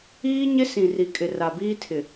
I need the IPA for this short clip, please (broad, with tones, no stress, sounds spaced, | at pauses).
iː˦ ɲ ɪ˦ s ĩ˨ r i˨ kʼ ɪ˨ r a˨ b iː˦ tʰ ɪ˨